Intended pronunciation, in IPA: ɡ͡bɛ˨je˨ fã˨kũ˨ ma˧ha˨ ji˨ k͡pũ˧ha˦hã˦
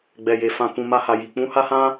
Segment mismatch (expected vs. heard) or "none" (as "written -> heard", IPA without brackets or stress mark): none